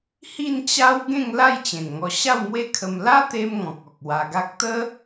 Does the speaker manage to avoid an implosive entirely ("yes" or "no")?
yes